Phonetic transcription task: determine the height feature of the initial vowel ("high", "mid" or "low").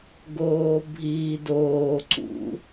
mid